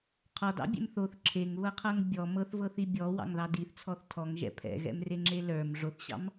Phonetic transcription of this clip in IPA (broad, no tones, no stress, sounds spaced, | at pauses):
qʰ ɔ d ɑ̰ bʲ ɛ̰ m θ o θ ǁʰ e ŋ β ɤ qʰ ɤ ŋ bʲ ɔ m ɤ θ v ɤ θ i bʲ ɔ w ɑ̰ ŋ ð ɑ d i θ t͡sʰ ɔ θ tʰ ɔ ŋ ʒ ɛ̰ pʰ ɛ̰ ɣ ɛ̰ m r e ŋ͡ǁ e l ə˞ m ʐ o θ ɕ ɑ̰ m